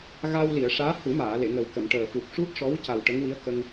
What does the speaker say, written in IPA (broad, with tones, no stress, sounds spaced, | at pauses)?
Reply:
ɣ a˧ w l i˨˩˨ ə̯ ʂ aː˧˥ h u˨˩˦ m aː˨˩˨ l e˨˩˨ ŋ ə˨˩ w k ə˨˩˨ m ʈ əː˨˩ f u˨˩ k̚ ʂ u˦˥ t̚ ʂ ɔ˧˥ w c a˨˩ w ʈ ə˧˥ ŋ w i˧˥ ə̯ k ə˧ ŋ